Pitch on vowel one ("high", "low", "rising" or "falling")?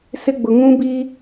high